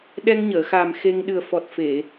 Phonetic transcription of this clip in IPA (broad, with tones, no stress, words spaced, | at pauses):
ɗɛ˧ŋɲəː˨˩˨xa˨˩m xe˧ŋ ɗɨ˨˩ə̯fɔ˨˩t̚fe˨˩˨